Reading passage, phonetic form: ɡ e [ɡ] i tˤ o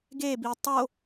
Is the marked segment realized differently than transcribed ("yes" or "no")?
yes